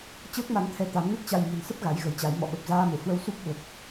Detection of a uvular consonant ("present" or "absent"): absent